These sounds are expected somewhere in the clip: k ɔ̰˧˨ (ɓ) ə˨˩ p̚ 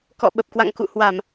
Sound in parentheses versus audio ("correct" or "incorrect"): correct